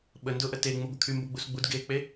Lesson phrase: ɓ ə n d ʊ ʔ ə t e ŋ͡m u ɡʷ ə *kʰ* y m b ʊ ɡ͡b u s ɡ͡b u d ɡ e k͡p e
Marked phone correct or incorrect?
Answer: correct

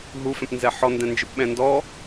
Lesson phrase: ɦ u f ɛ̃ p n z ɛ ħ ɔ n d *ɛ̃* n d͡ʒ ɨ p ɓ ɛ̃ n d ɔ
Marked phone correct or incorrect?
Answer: correct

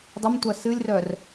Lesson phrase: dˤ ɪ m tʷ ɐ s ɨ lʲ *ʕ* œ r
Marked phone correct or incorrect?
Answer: incorrect: r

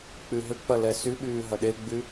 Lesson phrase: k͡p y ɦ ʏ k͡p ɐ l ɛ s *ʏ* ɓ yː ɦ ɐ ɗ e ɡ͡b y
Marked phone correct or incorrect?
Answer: incorrect: y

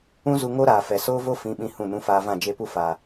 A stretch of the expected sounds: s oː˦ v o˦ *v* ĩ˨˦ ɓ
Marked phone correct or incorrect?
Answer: incorrect: f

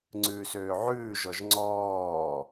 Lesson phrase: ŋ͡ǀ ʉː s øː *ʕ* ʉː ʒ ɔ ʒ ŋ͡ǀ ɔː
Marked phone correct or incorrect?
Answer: correct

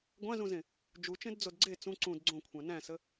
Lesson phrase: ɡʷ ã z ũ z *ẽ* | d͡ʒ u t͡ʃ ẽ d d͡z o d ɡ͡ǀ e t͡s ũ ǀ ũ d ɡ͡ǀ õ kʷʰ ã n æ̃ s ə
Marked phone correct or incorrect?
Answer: correct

